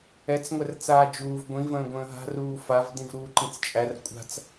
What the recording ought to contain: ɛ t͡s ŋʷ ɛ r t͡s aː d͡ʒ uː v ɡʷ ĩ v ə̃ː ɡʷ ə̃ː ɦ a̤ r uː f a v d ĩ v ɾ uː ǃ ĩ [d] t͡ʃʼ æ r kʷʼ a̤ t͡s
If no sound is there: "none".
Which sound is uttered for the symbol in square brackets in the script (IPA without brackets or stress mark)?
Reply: t͡s